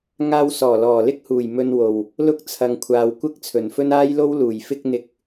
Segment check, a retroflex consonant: absent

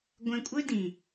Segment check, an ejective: present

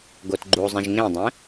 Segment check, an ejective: absent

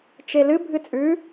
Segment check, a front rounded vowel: absent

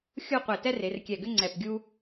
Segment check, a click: present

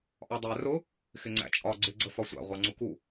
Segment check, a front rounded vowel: absent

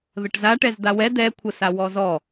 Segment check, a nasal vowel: absent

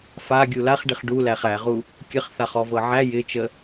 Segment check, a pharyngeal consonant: present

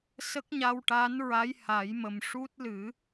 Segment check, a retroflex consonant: present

